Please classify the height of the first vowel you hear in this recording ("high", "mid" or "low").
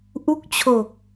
high